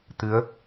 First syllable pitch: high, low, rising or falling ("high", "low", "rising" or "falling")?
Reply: rising